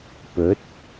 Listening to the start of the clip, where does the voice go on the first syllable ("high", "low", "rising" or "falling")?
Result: rising